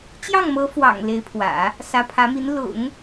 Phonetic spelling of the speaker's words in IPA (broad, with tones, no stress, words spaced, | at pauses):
t͡ɕjɑ˥˩ŋmɤ˧˥fwɑ̰˨˩ŋ le˧˥ɪ̯pʰwä̰˨˩˦ | sä˧˥pʰä˧˥mi˧˥n lʊ̰˨˩˦ŋ